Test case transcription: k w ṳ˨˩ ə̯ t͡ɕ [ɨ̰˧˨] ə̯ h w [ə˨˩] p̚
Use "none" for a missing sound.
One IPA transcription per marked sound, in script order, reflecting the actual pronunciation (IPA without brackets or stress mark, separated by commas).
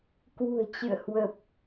ɨ̰˧˨, ə˨˩